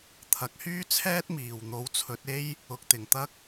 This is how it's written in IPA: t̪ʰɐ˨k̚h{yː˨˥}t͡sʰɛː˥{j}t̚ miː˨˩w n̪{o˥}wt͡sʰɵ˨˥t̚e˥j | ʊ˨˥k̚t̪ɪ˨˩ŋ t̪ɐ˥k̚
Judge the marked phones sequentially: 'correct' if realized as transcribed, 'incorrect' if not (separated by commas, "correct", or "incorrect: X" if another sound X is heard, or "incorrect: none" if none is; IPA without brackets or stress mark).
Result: incorrect: yː˥, incorrect: none, incorrect: o˨˥